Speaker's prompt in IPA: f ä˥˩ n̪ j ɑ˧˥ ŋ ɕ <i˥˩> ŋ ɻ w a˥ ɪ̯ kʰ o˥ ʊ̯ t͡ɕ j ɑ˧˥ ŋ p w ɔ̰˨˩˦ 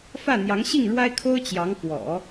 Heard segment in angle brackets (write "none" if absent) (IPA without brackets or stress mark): i˥˩